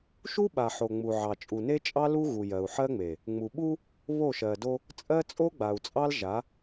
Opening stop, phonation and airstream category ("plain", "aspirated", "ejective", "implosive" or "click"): implosive